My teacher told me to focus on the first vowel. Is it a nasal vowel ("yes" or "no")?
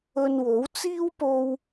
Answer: no